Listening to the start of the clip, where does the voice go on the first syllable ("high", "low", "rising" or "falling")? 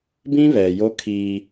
high